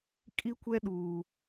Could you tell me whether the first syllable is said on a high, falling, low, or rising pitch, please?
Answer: high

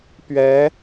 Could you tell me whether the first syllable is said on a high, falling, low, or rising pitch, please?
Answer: rising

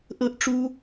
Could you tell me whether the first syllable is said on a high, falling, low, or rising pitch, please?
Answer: high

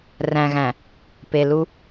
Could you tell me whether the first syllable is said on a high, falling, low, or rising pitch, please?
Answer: low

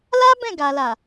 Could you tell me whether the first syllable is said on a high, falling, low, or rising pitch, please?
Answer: high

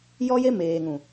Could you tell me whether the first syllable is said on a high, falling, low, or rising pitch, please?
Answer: high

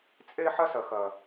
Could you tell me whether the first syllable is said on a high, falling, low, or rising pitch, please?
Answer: high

